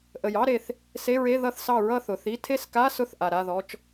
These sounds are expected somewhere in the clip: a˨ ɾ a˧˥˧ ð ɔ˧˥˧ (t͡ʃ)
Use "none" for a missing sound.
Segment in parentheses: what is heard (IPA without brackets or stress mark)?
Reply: t͡ʃ